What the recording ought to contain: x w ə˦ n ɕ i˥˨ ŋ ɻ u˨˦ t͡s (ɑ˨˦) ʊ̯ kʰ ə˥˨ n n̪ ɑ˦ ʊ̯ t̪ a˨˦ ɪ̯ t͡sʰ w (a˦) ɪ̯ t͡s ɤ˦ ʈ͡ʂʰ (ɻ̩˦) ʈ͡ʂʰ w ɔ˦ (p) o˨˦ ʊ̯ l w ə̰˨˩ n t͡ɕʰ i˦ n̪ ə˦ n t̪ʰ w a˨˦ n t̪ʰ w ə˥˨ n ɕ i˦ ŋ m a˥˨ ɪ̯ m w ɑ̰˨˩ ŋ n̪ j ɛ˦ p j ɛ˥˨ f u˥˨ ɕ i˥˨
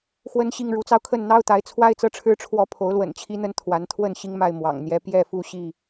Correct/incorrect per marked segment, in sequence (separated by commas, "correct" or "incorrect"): incorrect, correct, correct, incorrect